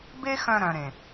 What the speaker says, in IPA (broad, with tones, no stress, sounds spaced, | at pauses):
b e˦ x œ̃˧ ɾ œ̃˨ ɾ ẽ˨